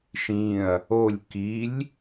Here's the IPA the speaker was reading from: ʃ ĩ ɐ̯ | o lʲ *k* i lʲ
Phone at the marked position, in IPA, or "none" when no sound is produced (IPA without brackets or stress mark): k